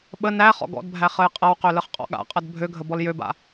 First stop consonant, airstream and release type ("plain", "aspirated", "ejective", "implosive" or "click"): implosive